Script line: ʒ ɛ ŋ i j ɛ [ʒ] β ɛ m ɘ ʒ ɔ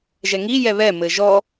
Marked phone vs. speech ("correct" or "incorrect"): incorrect